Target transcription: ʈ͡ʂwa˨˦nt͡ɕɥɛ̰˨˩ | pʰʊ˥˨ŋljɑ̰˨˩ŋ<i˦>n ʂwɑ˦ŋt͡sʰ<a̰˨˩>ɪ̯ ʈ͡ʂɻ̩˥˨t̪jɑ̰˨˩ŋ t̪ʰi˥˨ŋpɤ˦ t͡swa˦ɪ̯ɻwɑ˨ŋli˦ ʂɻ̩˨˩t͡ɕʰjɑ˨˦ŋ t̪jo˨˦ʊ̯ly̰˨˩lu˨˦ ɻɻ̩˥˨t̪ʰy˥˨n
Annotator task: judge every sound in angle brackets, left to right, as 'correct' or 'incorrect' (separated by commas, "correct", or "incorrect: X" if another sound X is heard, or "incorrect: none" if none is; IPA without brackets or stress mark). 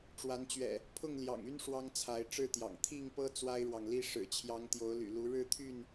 incorrect: y˦, incorrect: a˨˦